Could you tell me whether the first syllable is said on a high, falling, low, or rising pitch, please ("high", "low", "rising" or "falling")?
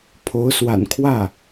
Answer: rising